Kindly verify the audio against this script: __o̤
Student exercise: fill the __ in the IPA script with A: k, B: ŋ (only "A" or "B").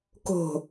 A